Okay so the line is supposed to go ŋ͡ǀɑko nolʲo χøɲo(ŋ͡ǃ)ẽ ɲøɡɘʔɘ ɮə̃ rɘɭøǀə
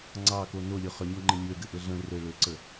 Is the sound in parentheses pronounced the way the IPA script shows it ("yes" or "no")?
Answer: yes